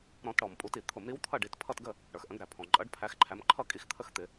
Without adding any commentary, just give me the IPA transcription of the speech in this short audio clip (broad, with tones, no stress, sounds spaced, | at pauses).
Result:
ɾ ɔ̃˧˩˧ t ɽ ɔ˩ m pʼ u˧˩˧ t i˩ t̪ʰ ʊ˧˩˧ m ɾ i˨˦ w t̪ʰ ʌ˥˨ ɖ i˩˧˩ t pʰ ʌ˥˨ t ɡ ə˥˨ | ɽ ə˞˩ x ʔ ə̃˧˩˧ ɡ ɾ æ˩ pʰ ɔ̃˩ ǃʼ ʌ˨˦ ɖ pʰ æ˨˦ x ǃʰ æ˨˦ m ǃʰ ʌ˥˨ kʼ i˨˦ x t̪ʰ ə˥˨ x t̪ ɪ˧˩˧